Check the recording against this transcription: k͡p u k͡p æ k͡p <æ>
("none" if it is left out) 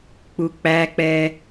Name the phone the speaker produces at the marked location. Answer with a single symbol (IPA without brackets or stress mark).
ɛ